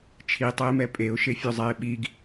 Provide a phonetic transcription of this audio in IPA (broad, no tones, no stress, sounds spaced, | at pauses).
t͡ʃʰ i tˤ ɛ ɪ̯ m ɛ pʼ e ʊ̯ ʃ e fʲ o zˤ ɛ ɪ̯ ɓ i ɡ